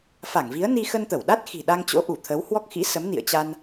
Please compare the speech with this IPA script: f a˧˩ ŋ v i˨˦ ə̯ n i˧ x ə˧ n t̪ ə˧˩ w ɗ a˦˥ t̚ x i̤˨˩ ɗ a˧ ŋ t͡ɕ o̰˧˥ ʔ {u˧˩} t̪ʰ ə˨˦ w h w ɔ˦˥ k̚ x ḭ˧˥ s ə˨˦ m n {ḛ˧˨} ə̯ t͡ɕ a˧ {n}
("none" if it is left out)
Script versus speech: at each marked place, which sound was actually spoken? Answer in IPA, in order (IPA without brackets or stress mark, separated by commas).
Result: u˧˩, ḭ˧˨, n